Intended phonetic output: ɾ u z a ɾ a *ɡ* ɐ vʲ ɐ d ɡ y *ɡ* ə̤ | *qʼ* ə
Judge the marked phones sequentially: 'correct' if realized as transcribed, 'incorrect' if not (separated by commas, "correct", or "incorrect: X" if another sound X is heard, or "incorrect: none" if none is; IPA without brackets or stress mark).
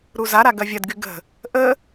correct, correct, incorrect: ʔ